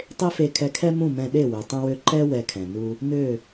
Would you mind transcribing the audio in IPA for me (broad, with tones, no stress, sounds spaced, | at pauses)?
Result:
tˤ e˥ f e˧ kʰ ɛ˧ kʰ ɛ˥ m ũ˥˩ m ɛ̃˧ ɗ e˥˩ w ø˩ tˤ ũ˧ w ø˧ ǃ ɛ˥ w ɛ˧ kʰ ɛ̃˩ n u˧ | n ø˥˩